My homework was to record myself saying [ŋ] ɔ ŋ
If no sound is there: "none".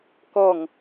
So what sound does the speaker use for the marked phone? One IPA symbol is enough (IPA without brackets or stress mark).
k